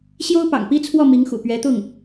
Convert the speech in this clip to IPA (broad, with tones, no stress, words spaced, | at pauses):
ɕjo˥ʊ̯pɑ̰˨˩ŋpi˥t͡sʰwɔ˥˩ mi˧˥ŋxṵ˨˩ pɥɛ˧˥t̪ʊ˥˩ŋ